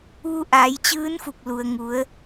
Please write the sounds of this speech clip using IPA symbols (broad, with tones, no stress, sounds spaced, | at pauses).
ʋ u˧ ʔ aː˩˧ j t͡ɕ ɯː˧˥ n f u˧˩ k̚ l u˩ ə̯ ŋ u˩˧ ə̯